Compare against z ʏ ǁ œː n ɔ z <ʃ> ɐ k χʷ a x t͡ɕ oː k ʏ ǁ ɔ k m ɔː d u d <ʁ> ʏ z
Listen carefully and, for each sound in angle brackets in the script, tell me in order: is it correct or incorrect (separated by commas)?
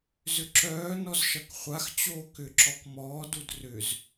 correct, incorrect